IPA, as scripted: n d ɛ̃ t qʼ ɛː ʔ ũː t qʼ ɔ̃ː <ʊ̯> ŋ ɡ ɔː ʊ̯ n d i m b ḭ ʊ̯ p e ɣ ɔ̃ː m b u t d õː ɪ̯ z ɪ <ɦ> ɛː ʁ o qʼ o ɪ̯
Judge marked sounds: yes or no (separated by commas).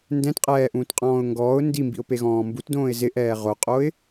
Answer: yes, no